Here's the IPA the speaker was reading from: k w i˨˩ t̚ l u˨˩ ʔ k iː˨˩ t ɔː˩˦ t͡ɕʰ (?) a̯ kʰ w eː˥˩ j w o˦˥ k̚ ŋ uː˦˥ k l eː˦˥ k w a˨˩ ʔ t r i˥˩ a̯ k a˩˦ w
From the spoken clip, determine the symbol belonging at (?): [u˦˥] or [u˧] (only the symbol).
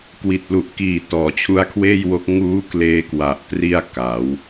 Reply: u˦˥